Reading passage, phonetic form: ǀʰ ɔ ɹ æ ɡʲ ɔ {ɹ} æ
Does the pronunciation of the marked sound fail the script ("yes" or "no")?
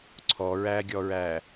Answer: no